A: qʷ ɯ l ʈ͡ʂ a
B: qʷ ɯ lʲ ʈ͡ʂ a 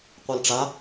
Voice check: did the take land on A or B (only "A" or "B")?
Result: A